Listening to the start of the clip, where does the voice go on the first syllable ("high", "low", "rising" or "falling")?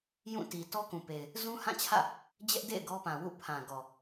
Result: falling